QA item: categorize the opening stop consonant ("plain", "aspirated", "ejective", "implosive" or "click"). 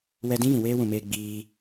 plain